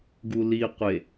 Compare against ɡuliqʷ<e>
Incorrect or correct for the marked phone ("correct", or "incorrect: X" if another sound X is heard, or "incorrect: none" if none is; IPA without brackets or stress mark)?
correct